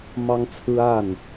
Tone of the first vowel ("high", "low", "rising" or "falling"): high